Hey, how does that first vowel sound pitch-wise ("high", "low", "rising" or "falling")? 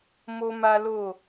high